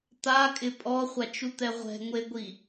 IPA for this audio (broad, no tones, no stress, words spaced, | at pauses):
t̪akʼɪ pʼɔχʷat͡ʃut̪ɛ ʁʷɛ̤ŋʷeɡʷi